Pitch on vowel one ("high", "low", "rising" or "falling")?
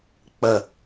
low